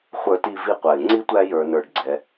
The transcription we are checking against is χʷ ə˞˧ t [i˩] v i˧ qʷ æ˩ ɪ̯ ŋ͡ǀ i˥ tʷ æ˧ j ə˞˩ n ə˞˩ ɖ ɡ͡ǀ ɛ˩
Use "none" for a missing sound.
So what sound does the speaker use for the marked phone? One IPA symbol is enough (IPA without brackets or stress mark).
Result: i˧